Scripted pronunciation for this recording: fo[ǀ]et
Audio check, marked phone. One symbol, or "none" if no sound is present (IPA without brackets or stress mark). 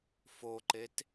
ǃ